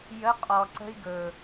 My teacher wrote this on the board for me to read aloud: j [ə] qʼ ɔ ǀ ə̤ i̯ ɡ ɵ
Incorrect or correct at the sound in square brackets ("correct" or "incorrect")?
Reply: correct